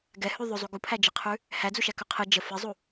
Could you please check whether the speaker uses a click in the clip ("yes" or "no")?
no